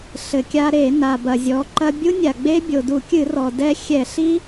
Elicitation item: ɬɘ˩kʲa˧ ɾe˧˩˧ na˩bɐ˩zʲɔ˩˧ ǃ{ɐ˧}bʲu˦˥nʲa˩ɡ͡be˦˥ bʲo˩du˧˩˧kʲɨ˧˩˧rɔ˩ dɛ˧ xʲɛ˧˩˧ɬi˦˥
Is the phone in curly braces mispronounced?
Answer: no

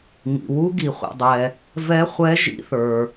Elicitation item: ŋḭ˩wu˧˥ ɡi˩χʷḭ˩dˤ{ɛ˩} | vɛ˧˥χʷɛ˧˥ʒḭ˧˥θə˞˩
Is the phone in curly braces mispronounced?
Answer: no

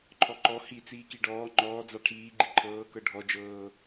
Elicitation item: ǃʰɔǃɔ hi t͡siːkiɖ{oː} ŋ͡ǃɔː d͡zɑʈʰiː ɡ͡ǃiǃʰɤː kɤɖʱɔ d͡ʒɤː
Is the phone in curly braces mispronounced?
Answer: yes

